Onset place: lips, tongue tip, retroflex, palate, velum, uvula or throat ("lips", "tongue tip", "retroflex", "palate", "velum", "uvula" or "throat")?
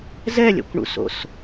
tongue tip